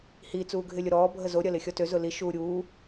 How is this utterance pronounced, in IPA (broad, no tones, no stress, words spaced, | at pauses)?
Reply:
hi t͡suːɡʱɪlʲʊɾɔː bʱəzo ɾʲɐlɪxʲɔtø zʊli ʃuːɾʲuː